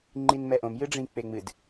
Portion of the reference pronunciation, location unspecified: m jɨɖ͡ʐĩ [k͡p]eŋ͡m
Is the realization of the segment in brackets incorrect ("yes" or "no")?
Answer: no